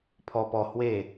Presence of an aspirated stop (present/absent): present